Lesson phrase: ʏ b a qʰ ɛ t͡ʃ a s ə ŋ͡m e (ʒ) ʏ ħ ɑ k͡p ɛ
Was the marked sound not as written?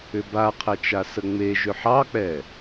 no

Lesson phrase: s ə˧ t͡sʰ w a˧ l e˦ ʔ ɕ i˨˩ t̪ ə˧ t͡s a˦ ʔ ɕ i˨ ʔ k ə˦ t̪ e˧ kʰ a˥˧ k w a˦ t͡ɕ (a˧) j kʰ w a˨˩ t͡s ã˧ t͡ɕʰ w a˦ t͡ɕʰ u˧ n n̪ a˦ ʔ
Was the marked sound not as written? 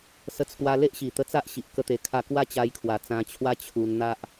no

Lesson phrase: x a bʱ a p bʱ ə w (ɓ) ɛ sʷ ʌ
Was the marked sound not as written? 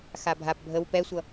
yes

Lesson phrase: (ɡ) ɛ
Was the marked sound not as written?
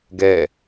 no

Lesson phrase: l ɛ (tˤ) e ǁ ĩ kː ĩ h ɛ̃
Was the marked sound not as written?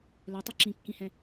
no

